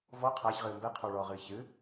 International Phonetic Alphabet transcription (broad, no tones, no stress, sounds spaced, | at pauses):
v ɔ qʰ a ç ʁ ɨː m b ɛ qʰ ɔ ɭ ɔː ʁ ɨː ç ɨ